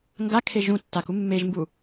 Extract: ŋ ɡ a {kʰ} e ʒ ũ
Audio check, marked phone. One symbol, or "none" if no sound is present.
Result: kʰ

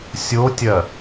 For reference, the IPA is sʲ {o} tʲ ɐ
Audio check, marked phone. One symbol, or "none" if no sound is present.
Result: o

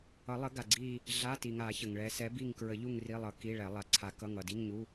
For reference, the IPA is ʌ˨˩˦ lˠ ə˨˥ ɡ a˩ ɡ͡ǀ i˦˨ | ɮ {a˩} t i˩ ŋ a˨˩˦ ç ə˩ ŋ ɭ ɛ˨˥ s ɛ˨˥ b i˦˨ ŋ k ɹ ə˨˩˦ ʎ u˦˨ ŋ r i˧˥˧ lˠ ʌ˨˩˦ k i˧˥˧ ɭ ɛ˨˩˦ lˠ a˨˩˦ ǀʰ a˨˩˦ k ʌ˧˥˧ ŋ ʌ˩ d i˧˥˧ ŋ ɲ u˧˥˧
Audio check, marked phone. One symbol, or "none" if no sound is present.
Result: a˧˥˧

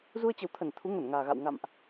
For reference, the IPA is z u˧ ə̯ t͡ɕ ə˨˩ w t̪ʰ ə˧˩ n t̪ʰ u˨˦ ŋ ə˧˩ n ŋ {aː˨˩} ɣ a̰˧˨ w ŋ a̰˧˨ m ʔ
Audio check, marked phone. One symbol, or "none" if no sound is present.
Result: aː˨˩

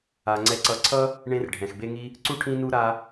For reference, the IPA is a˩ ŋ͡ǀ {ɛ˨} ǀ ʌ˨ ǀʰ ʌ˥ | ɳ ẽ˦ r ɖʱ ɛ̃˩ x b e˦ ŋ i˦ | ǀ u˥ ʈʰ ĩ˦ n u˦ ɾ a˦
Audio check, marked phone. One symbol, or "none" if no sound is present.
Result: ɛ˨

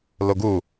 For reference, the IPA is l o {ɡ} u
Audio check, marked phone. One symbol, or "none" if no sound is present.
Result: ɡ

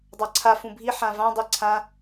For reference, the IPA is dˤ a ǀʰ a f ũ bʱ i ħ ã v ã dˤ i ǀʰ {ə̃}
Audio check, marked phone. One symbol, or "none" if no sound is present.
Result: ã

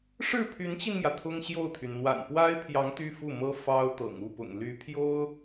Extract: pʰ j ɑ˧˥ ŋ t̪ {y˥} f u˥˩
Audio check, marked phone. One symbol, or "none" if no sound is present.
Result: y˥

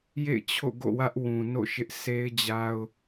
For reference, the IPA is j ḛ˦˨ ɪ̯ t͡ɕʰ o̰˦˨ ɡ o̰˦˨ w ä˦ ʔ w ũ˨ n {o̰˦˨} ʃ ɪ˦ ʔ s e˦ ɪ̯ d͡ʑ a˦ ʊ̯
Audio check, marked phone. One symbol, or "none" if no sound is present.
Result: o̰˦˨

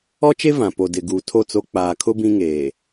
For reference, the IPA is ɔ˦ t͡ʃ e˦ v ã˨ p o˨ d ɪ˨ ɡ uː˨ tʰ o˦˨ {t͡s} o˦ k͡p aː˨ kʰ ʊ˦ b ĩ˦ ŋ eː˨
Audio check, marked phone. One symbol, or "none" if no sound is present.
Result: t͡s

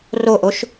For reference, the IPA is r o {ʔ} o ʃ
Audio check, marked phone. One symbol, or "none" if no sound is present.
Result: ʔ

